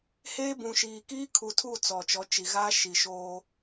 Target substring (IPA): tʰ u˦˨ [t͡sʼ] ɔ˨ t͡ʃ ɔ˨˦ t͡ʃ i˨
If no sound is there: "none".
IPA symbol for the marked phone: t͡s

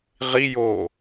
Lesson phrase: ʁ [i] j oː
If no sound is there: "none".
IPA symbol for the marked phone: i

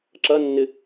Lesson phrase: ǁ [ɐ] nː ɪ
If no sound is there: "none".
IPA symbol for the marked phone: ɐ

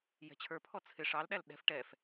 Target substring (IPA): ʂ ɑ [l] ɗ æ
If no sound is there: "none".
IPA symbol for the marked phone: l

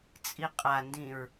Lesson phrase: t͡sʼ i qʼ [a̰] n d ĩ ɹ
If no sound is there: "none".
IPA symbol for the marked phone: a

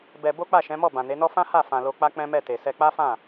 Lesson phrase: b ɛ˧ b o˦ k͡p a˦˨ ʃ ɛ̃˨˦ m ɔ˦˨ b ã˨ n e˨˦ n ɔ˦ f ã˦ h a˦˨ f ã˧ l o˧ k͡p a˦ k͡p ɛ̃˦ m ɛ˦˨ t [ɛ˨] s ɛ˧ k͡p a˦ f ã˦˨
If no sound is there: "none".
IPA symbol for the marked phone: e˨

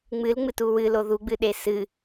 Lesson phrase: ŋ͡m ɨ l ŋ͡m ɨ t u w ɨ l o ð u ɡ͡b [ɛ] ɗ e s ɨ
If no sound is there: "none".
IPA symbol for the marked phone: ɨ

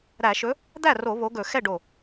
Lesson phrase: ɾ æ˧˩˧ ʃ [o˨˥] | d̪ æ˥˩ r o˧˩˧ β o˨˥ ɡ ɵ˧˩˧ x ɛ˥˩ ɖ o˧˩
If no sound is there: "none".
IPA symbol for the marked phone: ɵ˨˥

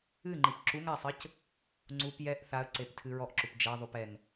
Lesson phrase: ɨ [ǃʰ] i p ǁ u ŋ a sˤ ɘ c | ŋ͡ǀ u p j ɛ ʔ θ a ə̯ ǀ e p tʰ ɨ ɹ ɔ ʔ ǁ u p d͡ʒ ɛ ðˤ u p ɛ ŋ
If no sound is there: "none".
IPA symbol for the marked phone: ŋ͡ǃ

